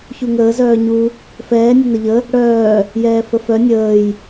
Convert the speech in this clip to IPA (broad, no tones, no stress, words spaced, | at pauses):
çuŋəː zœːɲu | fɛː nʲənəʎə | ɽœː | jɛːfəfœ nʲəːj